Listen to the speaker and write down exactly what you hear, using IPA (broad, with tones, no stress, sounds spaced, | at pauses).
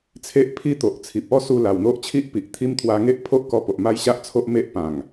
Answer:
t͡sʰ e˦ ʔ pʰ i˥˧ t̪ o˨ ʔ t͡sʰ i˨ p̚ ɔ˦ s u˧ l a˨˩ w n̪ o˦ ʔ t͡ɕʰ i˦ ʔ p i˨ ʔ t̪ʰ i˦ m t̪ʰ w a˧ ŋ e˦ ʔ pʰ o˦ ʔ k ɔ˧ p o˨ ʔ m a˦ j ɕ a˦ ʔ t͡sʰ o˦ ʔ m e˦ ʔ p ã˨˩ ŋ